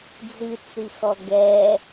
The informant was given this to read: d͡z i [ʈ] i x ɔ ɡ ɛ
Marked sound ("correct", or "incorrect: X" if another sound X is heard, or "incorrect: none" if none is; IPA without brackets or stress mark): incorrect: t͡s